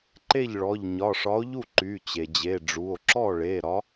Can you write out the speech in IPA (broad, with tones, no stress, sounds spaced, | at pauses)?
ǃ e˥˩ ʎ ɭ ɔ˩˧˩ ʎ ɲ ɒ˩˧˩ ʂ ɒ˨˥ o̯ ʎ u˥˩ ǃ y˩˧˩ t͡ɕ e˩ d͡ʑ e˩˧˩ ɖ͡ʐ u˩˧˩ o̯ ǁ ɔ˥˩ ɭ e˩˧˩ ɾ ɒ˨˥